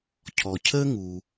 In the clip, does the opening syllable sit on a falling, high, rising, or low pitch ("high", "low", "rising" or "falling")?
low